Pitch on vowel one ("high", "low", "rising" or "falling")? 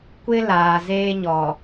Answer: high